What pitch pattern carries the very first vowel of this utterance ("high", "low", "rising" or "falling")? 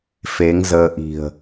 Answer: rising